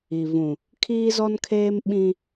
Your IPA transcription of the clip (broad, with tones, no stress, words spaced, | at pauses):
i˨vũ˨ | kʰiː˦zɔ˦nkʰeː˦m ɓĩ˦